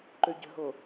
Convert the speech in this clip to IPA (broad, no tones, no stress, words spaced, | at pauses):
ǃøɟə̤ɦo